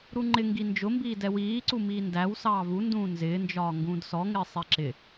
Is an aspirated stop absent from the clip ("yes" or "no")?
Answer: yes